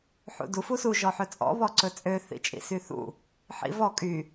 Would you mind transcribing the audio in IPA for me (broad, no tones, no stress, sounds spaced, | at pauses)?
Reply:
ħ ṵ d u f u s u ʒ ɔ ħ ɵ t͡sʼ ɔ̰ β ɔ ǀ ɵ t͡sʼ ø θ ḭ t͡ʃʼ ḭ s y θ ṵ | ħ ḭ v ɔ kʼ y